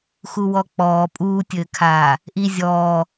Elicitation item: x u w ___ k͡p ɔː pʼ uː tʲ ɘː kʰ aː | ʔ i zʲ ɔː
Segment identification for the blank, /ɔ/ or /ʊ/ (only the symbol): ɔ